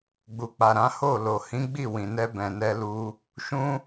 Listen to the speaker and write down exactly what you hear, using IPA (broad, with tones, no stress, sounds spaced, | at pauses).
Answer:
ɡ͡b u˨ k͡p a˨ ɾ ã˨˦ h o˦˨ l o˨ h ĩ˨˦ ɡ͡b i˦˨ w ĩ˨ n ɛ˧ b ɛ̃˨ n ɛ˧ l u˧ | ʃ ũ˦